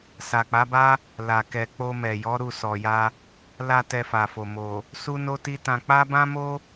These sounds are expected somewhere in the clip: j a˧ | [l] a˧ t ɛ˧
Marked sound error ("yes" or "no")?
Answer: no